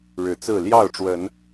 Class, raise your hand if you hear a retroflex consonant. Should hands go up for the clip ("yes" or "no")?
yes